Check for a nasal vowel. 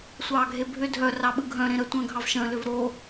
present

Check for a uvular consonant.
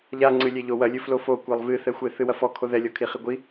present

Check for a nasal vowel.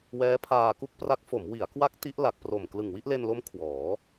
absent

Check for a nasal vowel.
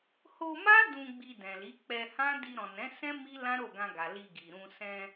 present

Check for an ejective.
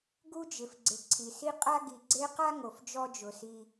present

